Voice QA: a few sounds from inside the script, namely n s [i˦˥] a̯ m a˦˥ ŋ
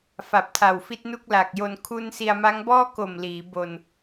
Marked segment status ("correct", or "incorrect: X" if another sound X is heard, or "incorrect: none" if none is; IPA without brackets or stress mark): incorrect: i˧